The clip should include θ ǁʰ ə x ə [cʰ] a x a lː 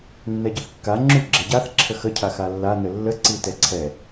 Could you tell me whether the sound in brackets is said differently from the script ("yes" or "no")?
no